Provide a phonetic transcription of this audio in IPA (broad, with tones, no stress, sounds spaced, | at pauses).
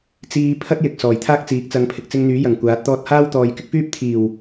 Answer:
t͡s iː˧ pʰ ɐ˥ t̚ j ɪ˨ k̚ s ɔː˨˩ j t̪ʰ aː˥ k̚ t͡s iː˨˥ k̚ t͡s ɐ˨˧ ŋ pʰ ɪ˨ k̚ t͡s ɪ˧ ŋ n̪ yː˨˥ j ɐ˨˩ ŋ kʷ aː˨˥ t̚ t̪ ɔː˥ t̚ h aː˥ w t̪ ɔː˨ j k ɪ˥ k̚ f yː˥ p̚ t̪ʰ iː˨˩ w